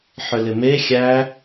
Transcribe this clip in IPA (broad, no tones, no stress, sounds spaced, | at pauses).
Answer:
ħ ʏ l ɪ m e xʲ æ